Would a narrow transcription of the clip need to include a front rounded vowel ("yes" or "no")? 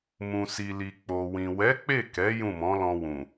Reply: no